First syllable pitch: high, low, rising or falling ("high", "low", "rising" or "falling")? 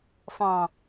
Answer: low